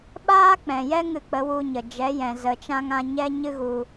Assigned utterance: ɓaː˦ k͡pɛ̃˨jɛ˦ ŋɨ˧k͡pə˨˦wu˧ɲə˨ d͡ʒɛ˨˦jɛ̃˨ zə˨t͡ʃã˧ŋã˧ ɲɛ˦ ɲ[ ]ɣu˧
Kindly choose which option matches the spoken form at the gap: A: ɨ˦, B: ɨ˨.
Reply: A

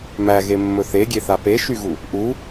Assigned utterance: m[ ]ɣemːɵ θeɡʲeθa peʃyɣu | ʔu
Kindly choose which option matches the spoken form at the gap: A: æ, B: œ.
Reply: A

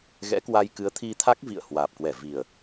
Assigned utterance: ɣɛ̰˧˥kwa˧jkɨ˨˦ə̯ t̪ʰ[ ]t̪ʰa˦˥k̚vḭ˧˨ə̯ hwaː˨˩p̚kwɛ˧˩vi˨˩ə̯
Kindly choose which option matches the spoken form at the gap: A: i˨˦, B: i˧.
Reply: B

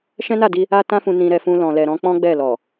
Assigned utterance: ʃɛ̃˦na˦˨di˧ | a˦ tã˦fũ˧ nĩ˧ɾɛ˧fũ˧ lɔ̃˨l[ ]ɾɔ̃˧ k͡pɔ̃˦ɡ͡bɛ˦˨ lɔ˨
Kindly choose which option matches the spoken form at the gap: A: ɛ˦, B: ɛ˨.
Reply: B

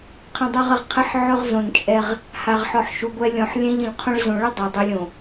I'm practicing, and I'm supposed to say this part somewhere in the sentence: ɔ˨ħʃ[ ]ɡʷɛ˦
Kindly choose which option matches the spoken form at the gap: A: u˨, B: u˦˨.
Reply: A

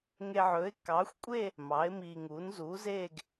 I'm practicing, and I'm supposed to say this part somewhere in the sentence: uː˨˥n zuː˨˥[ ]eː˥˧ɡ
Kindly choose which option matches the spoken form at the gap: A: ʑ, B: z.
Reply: B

